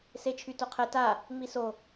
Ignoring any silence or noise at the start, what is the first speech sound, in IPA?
s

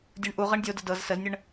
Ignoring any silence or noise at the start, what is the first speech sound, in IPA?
dʲ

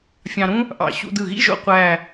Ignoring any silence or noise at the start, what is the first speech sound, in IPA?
fʲ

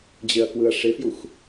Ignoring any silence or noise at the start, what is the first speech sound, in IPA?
d͡ʑ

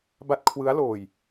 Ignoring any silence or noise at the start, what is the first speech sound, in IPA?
b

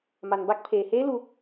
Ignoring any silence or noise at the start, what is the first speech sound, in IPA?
m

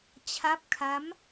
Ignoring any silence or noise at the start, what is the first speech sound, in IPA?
t͡ɕʰ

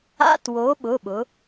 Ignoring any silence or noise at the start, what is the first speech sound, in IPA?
a̰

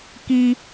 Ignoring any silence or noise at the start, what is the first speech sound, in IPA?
k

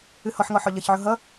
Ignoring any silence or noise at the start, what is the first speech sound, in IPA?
ɨ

